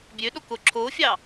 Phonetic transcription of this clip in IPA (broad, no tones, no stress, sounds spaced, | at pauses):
bʲ ø ɗ o k o ǁʰ o fʲ ɑ